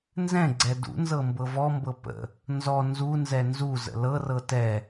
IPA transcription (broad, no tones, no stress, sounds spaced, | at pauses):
n z ɛ̃ ɡ͡ǀ ɛ d ṵ n z ɤ m b ɤ v ɔ m b ɤ p ə̰ | n z ɔ n z u n z ɛ n z u z ə̰ l ɤ r ɤ t ɛ